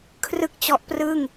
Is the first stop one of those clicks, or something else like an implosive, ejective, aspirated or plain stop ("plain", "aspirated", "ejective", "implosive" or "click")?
aspirated